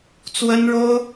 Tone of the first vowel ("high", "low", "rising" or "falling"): high